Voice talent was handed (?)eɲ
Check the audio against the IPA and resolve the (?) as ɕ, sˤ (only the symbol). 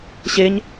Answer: ɕ